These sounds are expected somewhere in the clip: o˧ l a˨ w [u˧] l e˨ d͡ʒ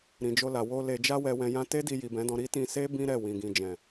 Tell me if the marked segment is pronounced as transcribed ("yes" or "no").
no